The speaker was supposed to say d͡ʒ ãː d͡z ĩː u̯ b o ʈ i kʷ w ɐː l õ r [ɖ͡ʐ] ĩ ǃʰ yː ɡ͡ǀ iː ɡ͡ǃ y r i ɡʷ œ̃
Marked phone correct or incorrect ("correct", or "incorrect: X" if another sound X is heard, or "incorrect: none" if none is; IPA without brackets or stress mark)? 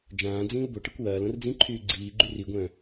incorrect: d͡z